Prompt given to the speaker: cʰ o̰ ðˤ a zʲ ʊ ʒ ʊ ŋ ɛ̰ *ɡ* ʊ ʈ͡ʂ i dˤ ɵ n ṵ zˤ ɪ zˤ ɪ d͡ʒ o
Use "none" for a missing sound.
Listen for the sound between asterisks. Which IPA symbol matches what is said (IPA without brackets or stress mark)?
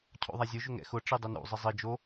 x